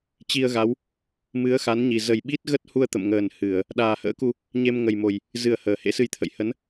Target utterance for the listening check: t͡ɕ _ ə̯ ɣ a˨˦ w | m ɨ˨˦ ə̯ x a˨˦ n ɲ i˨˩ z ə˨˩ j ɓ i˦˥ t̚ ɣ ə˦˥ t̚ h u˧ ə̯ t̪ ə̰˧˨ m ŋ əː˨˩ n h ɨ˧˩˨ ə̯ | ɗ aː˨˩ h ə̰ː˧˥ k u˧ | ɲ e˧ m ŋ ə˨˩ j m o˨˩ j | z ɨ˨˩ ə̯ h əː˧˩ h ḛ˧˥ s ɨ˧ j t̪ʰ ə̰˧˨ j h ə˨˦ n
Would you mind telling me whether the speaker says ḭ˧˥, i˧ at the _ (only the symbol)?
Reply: i˧